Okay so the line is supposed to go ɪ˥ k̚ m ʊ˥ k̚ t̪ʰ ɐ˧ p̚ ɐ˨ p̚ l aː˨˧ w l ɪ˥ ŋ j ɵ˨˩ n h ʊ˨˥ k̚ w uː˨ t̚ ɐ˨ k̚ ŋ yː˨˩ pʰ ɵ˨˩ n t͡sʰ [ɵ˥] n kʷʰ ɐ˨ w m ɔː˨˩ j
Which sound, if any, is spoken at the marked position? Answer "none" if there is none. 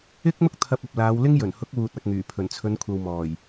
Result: ɵ˨˧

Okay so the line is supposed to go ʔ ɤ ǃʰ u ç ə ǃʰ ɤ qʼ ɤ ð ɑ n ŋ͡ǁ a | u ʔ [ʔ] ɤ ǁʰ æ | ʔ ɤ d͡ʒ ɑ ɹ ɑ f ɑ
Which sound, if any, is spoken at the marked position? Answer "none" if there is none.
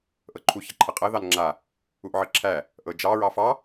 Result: ʕ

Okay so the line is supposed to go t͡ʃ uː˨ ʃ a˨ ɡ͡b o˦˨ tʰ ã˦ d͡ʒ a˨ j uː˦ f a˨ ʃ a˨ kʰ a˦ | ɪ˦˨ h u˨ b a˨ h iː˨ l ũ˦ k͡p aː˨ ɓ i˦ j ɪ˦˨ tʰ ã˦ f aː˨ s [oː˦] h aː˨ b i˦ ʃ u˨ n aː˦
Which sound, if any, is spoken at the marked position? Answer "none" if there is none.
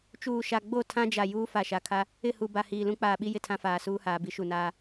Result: uː˦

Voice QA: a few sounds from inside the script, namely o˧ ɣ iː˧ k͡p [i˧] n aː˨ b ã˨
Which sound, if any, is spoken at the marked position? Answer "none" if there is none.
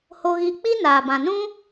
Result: i˦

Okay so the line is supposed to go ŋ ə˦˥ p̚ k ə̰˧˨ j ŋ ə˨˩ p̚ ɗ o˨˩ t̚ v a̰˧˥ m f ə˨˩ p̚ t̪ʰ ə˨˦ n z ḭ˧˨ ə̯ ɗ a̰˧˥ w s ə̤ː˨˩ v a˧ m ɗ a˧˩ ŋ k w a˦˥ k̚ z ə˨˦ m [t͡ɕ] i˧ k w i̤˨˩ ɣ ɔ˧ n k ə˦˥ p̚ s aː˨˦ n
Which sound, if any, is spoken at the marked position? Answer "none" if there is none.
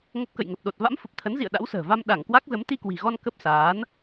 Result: t̪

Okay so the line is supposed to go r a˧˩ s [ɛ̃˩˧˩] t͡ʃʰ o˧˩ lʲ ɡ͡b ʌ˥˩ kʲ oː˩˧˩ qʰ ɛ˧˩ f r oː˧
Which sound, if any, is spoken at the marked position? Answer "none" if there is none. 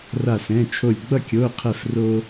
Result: ɛ̃˩˧˩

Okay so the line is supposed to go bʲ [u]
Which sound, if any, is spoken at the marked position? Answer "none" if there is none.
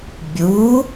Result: u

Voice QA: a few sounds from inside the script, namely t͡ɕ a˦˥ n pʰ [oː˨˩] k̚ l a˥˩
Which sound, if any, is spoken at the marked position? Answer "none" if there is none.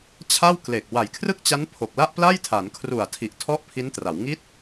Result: o˨˩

